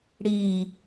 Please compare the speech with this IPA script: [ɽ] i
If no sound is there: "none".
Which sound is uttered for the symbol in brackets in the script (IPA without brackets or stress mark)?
ɽ